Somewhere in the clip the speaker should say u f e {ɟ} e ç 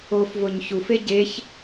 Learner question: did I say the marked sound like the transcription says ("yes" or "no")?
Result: yes